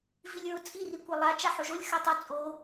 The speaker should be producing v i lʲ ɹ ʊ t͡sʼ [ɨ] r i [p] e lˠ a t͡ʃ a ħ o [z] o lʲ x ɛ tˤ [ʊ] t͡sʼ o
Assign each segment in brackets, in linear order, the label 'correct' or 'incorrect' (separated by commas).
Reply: incorrect, incorrect, incorrect, correct